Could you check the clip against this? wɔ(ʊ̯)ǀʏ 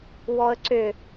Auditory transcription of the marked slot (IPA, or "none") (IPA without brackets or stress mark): ə̯